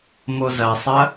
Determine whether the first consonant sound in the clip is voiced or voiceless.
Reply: voiced